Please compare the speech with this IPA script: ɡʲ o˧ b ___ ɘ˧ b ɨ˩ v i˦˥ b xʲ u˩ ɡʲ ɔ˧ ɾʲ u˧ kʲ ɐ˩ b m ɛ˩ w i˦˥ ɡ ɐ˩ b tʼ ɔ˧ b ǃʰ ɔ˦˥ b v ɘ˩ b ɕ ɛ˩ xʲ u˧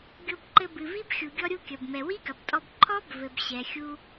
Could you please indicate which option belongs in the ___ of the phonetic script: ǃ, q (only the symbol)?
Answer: ǃ